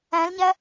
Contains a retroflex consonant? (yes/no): no